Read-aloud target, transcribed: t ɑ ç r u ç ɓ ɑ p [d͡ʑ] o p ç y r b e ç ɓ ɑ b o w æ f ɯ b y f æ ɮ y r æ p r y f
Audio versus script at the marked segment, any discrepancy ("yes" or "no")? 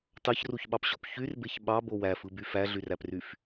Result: yes